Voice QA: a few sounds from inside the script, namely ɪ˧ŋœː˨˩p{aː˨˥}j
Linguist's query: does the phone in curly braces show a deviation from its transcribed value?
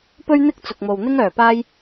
yes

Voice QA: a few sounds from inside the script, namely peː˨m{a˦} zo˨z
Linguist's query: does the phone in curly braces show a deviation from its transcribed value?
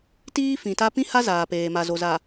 yes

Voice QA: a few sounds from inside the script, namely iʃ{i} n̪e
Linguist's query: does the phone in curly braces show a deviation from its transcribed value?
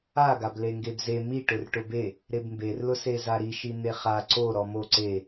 no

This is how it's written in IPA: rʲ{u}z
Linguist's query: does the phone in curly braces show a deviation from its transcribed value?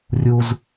no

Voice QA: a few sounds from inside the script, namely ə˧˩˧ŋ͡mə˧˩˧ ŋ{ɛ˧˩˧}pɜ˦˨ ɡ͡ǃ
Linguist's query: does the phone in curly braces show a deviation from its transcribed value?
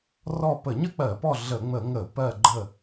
yes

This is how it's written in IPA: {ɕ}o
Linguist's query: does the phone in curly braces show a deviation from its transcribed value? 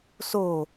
yes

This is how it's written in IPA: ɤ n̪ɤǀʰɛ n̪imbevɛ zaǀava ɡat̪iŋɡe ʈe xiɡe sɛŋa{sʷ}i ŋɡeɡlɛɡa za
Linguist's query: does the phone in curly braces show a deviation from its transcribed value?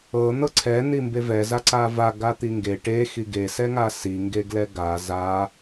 yes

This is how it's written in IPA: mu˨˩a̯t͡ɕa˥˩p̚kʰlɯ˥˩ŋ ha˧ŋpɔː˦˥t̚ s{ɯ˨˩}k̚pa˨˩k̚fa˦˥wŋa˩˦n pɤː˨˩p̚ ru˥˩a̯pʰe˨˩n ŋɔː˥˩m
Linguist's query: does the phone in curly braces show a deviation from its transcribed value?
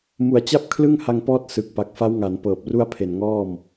no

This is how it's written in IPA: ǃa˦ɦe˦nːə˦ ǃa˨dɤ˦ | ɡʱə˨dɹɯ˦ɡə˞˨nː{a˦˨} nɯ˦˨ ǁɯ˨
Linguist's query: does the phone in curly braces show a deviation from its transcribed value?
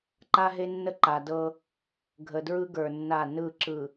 no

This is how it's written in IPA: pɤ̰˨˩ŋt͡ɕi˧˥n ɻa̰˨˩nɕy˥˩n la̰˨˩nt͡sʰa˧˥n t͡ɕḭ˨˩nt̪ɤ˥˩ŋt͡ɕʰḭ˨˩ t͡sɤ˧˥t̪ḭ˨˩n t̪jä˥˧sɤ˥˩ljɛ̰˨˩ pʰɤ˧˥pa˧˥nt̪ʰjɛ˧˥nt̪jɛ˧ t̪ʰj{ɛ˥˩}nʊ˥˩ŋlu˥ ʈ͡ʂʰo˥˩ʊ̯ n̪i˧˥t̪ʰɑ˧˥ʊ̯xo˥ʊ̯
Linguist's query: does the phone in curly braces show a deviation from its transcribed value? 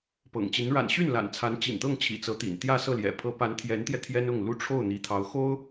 yes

